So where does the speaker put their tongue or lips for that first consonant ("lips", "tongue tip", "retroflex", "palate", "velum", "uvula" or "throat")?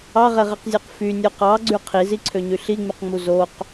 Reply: uvula